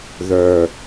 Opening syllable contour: low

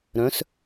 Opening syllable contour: rising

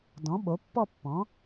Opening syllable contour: rising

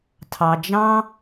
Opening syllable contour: low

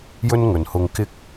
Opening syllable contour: high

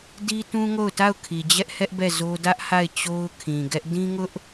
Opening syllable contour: high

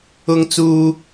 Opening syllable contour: high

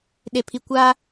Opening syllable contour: low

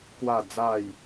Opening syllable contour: falling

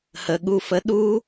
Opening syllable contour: low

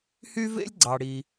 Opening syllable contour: high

